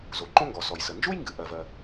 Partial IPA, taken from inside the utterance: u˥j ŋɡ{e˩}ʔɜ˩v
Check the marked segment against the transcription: incorrect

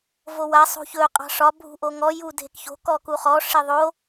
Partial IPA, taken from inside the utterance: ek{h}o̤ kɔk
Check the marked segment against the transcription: incorrect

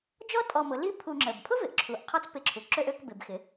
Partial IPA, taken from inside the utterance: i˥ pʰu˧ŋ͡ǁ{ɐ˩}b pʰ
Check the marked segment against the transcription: incorrect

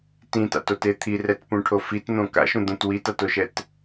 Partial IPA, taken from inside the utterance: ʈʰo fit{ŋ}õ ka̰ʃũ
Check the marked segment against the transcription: incorrect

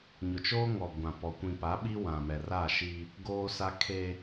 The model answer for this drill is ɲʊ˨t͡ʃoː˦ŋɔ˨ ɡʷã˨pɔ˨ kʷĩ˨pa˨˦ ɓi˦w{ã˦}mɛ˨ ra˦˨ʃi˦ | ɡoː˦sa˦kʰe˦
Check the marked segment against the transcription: incorrect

